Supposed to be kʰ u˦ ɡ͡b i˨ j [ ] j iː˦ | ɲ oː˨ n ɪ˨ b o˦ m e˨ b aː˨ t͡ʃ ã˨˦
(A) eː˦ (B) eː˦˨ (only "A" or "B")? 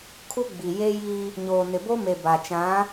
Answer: A